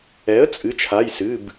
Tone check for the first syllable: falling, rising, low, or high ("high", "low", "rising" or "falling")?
rising